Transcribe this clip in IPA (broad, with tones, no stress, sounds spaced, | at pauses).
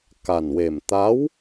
k a˨˩ n w e˨˩ m t̪ a˧˥ w